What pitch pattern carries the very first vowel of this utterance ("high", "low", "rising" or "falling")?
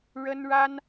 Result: high